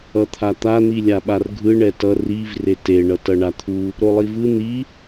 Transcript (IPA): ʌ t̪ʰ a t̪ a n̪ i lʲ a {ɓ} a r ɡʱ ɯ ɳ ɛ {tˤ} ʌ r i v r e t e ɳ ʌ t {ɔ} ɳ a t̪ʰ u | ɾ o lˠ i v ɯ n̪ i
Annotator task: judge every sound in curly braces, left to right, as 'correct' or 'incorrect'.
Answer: correct, incorrect, incorrect

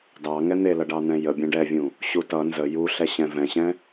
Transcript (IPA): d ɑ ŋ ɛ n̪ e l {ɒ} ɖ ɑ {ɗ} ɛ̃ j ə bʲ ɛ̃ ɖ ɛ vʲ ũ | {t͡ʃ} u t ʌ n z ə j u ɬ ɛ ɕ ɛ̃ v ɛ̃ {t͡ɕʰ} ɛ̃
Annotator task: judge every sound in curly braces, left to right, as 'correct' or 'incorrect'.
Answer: incorrect, incorrect, incorrect, incorrect

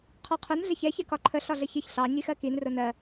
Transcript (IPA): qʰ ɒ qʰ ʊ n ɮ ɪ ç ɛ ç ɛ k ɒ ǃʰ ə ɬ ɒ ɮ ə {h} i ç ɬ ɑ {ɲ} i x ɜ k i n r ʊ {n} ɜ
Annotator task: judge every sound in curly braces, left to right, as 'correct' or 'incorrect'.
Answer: incorrect, correct, correct

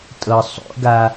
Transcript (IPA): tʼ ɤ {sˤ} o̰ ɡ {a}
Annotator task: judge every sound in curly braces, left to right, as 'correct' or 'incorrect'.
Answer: correct, correct

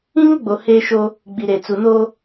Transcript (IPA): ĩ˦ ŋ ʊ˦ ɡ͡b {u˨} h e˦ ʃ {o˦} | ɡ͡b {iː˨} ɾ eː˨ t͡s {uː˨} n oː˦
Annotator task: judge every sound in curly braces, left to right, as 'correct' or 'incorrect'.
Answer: incorrect, correct, incorrect, incorrect

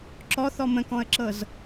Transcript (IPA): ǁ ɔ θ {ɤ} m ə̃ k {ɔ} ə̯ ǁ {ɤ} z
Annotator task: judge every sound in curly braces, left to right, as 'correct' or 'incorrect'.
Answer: incorrect, incorrect, correct

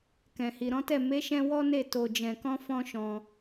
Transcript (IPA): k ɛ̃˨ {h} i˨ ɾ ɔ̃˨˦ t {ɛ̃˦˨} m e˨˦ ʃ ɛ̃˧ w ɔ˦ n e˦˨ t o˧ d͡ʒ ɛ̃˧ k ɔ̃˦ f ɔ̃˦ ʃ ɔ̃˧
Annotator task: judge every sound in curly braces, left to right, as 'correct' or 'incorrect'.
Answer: correct, incorrect

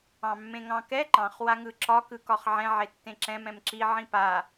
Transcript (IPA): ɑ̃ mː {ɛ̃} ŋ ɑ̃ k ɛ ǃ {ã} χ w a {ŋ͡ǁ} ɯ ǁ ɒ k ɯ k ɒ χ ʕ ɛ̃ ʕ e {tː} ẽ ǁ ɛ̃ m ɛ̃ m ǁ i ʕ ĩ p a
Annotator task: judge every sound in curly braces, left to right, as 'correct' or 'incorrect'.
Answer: incorrect, incorrect, incorrect, correct

